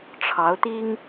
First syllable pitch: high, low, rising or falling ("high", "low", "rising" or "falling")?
rising